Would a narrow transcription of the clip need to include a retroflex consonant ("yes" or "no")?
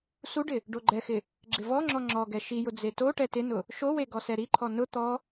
yes